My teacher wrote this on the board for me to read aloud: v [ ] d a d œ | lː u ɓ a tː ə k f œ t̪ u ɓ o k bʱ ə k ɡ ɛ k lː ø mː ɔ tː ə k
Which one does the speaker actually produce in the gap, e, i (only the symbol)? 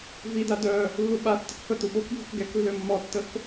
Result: i